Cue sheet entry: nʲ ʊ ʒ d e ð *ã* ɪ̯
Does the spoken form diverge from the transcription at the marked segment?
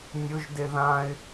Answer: no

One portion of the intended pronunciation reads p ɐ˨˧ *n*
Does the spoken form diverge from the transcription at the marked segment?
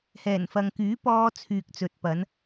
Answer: no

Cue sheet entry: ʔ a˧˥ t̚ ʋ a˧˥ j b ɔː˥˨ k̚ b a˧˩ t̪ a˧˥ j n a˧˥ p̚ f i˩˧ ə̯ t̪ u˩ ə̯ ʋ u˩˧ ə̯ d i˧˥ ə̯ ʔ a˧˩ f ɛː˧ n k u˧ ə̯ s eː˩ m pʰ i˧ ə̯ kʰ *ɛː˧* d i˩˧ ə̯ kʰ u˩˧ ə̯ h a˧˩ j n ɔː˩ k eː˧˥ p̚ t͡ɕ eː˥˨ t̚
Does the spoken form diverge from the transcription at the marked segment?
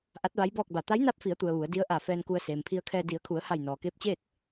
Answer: no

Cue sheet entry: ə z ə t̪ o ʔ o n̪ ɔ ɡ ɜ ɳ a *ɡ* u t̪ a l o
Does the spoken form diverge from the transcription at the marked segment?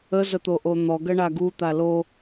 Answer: no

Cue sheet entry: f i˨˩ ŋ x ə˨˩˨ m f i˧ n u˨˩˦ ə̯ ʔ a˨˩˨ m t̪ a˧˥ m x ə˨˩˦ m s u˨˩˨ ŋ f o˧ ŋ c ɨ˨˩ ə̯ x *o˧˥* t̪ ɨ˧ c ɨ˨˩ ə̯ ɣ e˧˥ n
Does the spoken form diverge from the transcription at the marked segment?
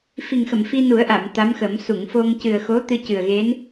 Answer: no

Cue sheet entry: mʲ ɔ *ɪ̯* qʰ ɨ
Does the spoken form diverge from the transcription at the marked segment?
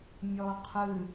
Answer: yes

